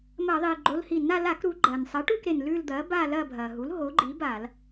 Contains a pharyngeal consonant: no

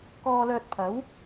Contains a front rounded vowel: yes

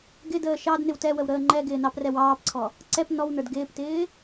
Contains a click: yes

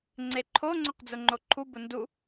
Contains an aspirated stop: yes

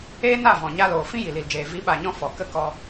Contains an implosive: yes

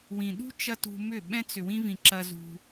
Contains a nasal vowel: yes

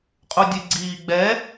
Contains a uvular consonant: yes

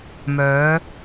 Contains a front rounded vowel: yes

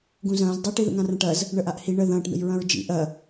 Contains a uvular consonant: no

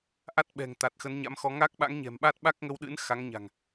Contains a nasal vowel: no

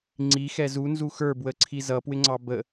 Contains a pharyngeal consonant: no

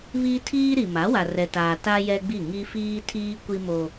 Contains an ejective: no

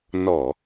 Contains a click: no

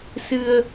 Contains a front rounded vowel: no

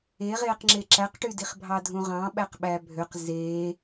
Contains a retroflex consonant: yes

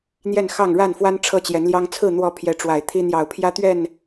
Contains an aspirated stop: yes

